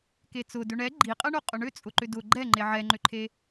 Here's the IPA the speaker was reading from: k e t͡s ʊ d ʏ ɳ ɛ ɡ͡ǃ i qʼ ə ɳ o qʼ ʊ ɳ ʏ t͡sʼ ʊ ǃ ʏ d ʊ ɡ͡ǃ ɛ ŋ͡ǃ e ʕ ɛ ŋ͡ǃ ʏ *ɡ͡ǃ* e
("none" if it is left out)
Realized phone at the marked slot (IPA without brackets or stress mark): ǃʰ